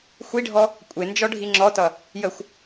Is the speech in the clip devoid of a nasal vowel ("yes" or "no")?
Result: yes